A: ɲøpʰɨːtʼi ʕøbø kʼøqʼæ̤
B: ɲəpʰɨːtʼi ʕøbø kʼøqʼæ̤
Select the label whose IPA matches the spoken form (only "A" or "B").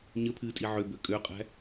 B